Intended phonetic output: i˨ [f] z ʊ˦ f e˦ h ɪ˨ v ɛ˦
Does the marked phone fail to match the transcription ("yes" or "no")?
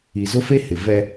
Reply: yes